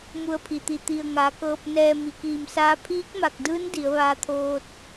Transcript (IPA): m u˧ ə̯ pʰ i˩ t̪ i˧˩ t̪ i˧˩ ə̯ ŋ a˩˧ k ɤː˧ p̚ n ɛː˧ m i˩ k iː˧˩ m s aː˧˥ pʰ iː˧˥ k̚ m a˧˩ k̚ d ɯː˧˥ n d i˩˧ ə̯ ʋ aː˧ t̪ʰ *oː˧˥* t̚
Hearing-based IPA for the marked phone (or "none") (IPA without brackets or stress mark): oː˧